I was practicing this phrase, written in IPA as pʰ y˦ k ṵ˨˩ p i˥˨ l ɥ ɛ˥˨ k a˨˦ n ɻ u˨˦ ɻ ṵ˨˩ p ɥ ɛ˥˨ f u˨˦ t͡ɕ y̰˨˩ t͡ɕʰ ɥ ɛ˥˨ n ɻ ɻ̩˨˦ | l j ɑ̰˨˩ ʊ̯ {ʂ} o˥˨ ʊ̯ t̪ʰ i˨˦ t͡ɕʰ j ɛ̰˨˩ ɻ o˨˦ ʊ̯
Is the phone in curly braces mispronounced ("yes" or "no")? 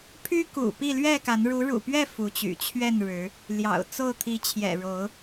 yes